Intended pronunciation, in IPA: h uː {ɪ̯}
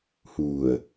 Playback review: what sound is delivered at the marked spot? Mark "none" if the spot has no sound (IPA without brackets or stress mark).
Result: ə̯